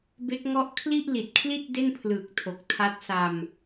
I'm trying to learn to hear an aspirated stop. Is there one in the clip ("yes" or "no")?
yes